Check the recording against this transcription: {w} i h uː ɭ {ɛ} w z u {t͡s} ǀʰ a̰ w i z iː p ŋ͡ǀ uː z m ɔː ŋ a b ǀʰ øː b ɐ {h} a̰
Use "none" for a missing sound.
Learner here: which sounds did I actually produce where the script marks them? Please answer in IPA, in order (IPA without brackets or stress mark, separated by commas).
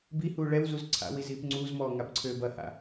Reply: b, ɛ, z, h